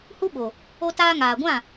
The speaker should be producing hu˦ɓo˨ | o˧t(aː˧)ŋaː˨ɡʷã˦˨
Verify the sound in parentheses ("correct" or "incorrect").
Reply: correct